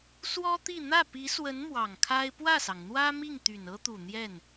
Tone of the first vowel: high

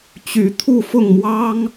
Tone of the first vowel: rising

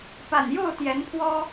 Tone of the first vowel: low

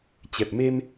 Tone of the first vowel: low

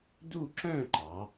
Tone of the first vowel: falling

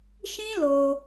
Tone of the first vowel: high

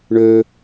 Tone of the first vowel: high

